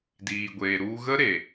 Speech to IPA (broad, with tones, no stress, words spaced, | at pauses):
diː˨ɡʷeː˨ ɾu˧ɣə˦ ɾe˨